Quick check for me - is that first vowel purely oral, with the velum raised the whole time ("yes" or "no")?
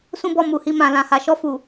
no